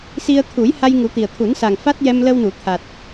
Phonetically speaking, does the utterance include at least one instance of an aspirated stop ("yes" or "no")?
yes